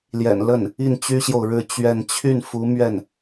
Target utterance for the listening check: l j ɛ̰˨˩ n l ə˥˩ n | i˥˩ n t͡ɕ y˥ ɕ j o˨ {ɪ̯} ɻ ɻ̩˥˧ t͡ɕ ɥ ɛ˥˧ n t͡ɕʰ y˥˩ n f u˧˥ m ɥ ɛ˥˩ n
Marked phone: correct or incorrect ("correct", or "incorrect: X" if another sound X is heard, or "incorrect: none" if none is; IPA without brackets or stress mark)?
incorrect: ʊ̯